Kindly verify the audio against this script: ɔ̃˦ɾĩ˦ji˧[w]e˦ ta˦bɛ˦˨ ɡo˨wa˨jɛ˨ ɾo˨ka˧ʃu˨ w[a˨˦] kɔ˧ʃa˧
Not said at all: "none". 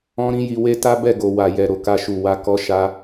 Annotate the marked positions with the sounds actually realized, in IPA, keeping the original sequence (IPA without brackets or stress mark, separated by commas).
w, a˧